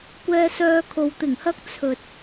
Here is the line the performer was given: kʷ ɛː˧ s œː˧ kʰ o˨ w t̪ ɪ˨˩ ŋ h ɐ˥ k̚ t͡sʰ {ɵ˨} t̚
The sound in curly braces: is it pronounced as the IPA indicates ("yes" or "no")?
yes